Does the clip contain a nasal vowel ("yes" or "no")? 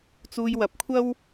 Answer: no